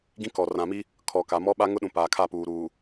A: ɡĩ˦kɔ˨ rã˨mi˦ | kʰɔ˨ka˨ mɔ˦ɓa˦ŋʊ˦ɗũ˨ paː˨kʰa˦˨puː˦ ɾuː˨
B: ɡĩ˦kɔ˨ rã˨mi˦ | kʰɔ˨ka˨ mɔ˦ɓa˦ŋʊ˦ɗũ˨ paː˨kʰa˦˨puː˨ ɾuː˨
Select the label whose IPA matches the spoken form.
B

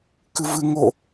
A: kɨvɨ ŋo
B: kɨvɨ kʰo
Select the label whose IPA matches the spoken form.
A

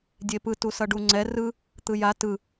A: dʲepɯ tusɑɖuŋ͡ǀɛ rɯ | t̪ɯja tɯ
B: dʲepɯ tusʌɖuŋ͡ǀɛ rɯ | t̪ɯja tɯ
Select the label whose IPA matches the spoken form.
B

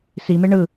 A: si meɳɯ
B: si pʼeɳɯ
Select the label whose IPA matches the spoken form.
A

